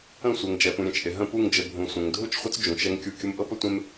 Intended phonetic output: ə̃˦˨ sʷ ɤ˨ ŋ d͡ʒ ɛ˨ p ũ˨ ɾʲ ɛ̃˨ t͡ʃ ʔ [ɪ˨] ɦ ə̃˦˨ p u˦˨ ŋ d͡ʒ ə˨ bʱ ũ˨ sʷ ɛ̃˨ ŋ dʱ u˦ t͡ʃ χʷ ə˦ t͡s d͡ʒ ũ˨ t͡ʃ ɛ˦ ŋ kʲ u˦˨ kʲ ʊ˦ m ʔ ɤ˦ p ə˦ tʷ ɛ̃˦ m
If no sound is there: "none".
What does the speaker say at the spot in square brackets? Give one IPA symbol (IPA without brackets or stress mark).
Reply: ɪ˨